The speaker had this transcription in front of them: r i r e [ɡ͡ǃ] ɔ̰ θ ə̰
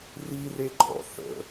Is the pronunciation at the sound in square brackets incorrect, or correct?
correct